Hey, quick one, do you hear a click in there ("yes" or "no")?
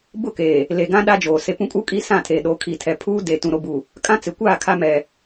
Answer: no